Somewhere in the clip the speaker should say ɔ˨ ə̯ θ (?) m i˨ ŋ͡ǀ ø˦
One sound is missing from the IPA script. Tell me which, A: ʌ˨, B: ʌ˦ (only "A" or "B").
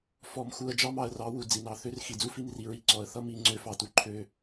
B